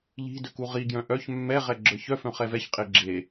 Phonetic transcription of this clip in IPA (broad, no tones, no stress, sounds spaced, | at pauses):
ʎ i̤ d ø k u ʁ i ɡ j œ̃ ʔ œ ç mː ɛ ʁ ɛ ɡ͡ǁ ə˞ ç œ f œ̃ χ ɛ v ɛ ç qʼ e ɡ͡ǁ e